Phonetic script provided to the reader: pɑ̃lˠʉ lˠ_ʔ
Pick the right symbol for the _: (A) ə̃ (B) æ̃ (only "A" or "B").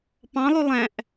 B